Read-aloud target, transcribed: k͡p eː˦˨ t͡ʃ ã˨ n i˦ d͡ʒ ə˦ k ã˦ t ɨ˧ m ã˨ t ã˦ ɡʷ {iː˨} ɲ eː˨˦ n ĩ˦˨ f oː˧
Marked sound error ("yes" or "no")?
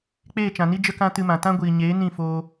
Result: no